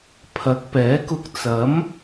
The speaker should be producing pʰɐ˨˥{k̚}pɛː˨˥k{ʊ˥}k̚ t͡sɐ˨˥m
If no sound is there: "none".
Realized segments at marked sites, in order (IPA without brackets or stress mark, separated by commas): k̚, ʊ˧